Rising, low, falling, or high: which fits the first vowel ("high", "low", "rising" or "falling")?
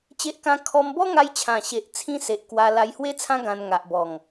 high